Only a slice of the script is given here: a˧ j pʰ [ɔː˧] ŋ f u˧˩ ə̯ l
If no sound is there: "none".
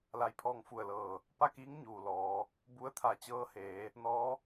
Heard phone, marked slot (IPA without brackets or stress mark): ɔː˧